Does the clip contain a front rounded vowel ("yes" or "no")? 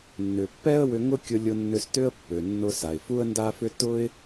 yes